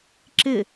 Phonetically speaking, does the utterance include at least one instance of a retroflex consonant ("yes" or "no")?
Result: no